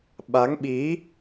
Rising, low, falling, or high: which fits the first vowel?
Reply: rising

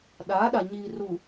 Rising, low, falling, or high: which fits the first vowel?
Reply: rising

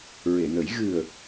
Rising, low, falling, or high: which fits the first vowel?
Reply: low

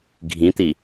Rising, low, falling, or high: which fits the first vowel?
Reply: rising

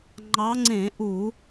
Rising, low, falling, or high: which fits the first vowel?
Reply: rising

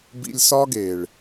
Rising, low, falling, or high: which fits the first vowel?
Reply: high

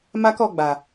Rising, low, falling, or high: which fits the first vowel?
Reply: high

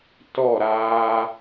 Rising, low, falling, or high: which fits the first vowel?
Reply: falling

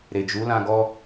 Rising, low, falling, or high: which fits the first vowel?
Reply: low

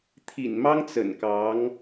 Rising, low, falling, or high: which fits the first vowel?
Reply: low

